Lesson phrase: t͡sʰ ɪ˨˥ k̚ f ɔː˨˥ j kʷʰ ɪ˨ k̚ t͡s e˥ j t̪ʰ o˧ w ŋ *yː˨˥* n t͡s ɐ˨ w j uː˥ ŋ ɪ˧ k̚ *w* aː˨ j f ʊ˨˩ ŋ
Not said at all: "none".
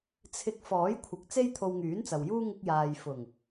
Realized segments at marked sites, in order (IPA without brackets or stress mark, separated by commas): yː˨˥, j